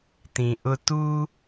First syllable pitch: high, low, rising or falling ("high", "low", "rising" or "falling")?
low